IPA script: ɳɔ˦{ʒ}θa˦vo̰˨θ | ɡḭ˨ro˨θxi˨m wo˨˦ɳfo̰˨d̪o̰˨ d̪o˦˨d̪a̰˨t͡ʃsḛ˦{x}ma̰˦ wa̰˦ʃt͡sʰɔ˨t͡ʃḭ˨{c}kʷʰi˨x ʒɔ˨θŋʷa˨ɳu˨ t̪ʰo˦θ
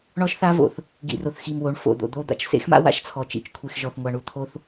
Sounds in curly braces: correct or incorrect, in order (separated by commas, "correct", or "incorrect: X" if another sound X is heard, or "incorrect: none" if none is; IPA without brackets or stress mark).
incorrect: ʃ, correct, incorrect: t͡ʃ